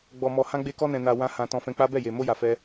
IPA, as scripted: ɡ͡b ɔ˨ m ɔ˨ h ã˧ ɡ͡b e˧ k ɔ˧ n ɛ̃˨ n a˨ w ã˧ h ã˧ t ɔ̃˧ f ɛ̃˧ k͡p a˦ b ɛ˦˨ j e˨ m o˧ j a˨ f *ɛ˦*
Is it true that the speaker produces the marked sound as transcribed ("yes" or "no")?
no